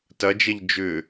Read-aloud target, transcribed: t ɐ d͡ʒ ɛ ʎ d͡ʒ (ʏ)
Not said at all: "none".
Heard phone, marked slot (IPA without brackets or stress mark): ʏ